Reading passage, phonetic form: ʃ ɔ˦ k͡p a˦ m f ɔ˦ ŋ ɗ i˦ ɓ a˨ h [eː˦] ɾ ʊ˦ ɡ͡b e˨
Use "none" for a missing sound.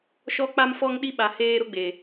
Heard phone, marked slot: eː˦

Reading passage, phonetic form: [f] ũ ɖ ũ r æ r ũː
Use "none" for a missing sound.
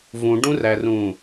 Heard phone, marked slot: v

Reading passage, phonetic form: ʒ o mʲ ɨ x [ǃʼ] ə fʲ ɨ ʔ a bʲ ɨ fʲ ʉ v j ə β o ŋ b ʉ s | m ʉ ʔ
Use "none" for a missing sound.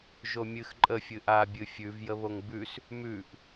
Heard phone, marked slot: ǃʼ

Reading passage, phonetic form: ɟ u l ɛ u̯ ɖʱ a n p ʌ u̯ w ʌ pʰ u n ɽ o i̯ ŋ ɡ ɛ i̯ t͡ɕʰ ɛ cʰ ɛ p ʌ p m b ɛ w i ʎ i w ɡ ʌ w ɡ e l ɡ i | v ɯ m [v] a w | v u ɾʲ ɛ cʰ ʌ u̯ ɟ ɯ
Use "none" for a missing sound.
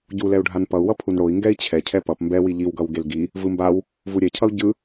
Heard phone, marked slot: b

